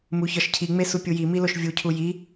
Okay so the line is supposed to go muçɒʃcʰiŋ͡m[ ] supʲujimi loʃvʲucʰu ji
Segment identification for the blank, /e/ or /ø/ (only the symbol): e